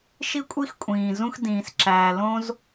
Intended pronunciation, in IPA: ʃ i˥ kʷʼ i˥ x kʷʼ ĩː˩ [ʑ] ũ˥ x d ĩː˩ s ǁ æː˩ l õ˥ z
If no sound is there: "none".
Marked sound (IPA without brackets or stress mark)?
z